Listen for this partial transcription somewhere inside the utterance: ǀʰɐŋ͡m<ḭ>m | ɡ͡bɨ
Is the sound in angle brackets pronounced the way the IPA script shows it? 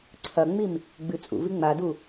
no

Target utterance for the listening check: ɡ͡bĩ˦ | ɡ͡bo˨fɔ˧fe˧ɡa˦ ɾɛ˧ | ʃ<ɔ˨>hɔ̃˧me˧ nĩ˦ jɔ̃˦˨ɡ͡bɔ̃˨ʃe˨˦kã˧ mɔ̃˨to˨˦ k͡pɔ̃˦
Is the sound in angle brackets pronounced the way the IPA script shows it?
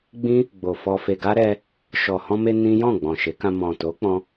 yes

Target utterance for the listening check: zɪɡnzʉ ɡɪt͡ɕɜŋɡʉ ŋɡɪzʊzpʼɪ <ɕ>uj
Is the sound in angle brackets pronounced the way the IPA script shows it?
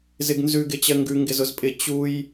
no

